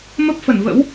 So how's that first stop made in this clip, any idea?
plain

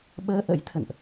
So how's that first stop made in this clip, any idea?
implosive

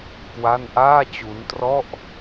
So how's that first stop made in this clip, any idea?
plain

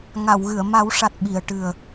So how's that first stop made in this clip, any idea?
plain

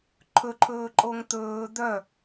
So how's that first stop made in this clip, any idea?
click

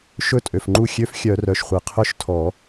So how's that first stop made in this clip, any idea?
ejective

